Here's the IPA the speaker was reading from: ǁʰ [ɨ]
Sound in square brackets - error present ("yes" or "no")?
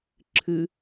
no